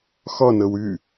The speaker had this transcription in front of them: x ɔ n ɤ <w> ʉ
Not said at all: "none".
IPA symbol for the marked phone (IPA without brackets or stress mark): w